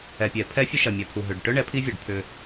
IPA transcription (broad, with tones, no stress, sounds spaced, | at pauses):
ɛ˨ pʲ ɛ˨ pʰ ɛ˦ fʲ ə˦ ʃ ɐ˨ mʲ œ˨ pʰ u˨ ɦ ø˨ ɖ ʈ œ˦ ɳ ɛ˨˦ pʰ i˦ vʲ œ˨ ɖ pʰ ʏ˦